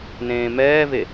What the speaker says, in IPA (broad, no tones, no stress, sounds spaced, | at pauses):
n ẽː m ɛː v e